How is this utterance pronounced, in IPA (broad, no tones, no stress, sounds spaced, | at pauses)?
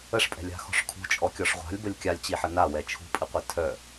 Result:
ə ʂ pʼ ɛ̤ lʲ a̤ x ɔ̤ ʂ kʰ ṳ t͡ʃʼ ɔ kʲ ɔ ʂ ʁʷ a̤ lʲ b ə lʲ kʲ a lʲ t͡ɕ i ħ ə n a w ɛ t͡ʃʰ ṳ pʼ i qʷ i tʰ œ